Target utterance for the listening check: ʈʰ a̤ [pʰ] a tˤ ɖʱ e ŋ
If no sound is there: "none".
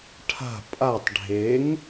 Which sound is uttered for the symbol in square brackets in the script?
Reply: pʼ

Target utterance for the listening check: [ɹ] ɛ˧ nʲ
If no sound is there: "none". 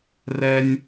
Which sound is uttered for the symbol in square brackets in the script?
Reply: r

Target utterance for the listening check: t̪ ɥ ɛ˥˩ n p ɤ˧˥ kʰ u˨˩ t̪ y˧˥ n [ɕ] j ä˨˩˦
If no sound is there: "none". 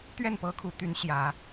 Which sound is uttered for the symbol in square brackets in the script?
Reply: ɕ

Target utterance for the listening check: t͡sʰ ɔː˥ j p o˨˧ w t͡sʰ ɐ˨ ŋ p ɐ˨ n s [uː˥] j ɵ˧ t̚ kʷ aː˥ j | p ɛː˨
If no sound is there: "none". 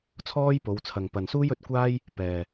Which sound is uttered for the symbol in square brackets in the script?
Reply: uː˥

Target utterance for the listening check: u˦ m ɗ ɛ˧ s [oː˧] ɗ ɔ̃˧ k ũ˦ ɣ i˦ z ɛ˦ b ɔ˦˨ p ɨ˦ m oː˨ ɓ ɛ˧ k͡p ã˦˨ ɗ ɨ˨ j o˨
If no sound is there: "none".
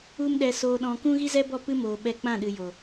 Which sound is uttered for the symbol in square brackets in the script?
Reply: oː˧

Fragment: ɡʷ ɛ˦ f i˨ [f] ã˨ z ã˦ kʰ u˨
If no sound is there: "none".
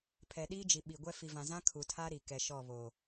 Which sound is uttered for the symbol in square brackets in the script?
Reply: v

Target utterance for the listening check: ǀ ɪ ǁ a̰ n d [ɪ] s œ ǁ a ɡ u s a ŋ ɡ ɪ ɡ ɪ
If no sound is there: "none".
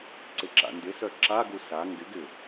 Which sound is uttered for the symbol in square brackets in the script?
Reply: ɪ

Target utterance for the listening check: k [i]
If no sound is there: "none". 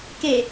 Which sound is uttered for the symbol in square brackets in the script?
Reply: e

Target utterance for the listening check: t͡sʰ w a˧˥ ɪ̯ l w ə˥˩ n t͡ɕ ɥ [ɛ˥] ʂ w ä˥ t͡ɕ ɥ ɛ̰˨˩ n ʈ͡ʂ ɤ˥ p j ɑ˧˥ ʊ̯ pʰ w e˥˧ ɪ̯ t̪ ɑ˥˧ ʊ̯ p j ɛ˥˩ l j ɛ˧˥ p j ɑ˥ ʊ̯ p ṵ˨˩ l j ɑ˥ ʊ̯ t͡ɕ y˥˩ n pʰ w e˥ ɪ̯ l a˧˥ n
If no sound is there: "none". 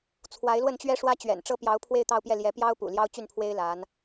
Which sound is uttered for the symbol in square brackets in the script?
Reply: ɛ˥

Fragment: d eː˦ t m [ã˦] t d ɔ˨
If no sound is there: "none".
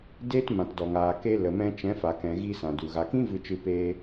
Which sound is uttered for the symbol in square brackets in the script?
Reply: ã˨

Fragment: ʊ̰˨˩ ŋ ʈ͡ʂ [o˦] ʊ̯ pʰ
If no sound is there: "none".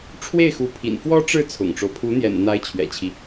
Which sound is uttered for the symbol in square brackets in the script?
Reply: o˦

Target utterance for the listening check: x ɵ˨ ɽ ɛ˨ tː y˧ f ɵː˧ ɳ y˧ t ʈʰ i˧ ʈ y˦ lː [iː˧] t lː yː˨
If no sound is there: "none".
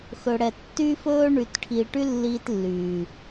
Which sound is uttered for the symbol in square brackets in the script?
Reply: iː˧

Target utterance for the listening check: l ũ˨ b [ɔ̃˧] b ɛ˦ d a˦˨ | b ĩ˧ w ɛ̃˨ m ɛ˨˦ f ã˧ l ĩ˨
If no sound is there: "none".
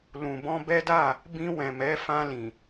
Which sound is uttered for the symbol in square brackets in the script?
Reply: ɔ̃˧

